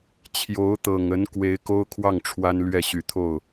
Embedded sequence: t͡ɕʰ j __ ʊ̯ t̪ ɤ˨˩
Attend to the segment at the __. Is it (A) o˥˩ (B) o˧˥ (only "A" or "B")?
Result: B